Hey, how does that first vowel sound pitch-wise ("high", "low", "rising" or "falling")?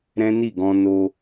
high